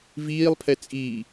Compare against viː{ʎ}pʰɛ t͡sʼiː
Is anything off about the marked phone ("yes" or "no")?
yes